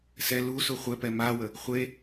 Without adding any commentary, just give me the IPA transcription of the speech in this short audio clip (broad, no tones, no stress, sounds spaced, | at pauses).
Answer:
s ɛ l u s u χʷ ɛ p ɛ m a w ə | χʷ e